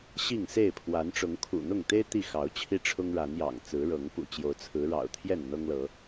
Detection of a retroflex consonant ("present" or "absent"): present